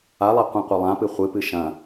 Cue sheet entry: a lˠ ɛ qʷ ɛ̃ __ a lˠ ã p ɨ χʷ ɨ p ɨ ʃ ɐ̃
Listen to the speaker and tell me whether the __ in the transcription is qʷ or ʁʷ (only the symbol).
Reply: qʷ